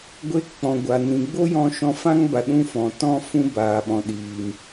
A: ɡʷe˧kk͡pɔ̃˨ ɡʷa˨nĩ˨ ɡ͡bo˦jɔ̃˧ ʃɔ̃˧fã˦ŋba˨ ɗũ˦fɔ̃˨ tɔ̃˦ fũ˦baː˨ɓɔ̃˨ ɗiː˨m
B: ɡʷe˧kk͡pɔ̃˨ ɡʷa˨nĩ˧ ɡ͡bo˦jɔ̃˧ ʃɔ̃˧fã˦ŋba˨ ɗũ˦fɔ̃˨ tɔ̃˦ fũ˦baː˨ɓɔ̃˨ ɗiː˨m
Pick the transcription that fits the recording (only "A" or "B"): A